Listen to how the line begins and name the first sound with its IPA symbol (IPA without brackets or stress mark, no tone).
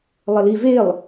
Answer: lˠ